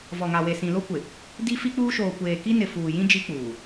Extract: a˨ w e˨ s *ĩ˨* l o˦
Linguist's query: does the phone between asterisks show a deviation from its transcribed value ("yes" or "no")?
no